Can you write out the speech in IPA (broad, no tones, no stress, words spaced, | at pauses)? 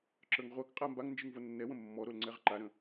ǁə˞ŋʁʷakqʼa mbaŋ nd͡ʒɯŋvonːɛwə̃ mːɔ ɾolŋ͡ǀɛʁǃaɾə̃